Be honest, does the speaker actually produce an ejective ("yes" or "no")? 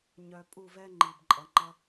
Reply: yes